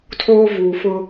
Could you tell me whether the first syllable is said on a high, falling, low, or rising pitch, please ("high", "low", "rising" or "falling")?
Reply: high